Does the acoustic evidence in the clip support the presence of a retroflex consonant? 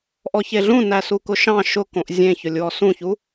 no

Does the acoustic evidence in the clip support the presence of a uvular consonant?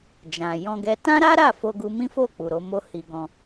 no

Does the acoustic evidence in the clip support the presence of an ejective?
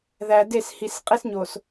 yes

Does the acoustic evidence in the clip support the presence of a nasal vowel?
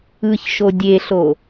no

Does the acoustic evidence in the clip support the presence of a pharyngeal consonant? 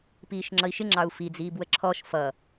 no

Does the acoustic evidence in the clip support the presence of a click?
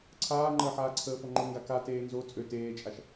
yes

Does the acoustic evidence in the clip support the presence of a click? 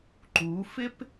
yes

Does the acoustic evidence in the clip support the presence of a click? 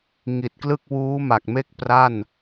no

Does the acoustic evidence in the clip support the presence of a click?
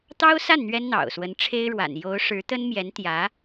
no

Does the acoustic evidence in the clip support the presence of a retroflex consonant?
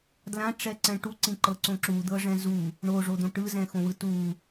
yes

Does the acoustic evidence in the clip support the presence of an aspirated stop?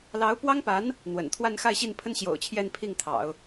yes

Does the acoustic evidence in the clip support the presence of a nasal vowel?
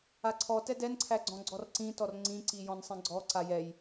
yes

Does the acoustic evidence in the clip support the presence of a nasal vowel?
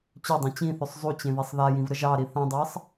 yes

